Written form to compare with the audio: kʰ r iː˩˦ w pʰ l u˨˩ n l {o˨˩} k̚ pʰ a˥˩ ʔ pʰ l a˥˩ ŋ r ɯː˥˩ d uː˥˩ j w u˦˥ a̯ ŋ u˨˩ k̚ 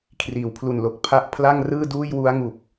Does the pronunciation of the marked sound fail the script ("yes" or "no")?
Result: no